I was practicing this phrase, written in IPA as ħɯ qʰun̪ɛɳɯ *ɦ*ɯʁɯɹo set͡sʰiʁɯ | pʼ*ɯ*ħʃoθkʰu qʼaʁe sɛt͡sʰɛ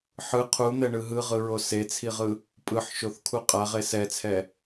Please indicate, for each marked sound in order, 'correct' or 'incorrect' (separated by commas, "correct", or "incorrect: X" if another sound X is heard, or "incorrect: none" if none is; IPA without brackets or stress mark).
correct, correct